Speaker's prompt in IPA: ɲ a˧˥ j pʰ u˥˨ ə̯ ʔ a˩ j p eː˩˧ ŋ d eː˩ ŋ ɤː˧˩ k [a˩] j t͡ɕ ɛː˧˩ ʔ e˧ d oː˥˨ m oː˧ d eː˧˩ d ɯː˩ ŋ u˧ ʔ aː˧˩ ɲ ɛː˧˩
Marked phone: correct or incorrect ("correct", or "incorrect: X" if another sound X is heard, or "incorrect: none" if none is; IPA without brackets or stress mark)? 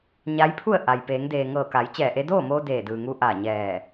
incorrect: a˩˧